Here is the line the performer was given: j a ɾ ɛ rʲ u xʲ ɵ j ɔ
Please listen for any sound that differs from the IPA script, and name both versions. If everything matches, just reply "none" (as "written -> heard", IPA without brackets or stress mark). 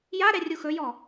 xʲ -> x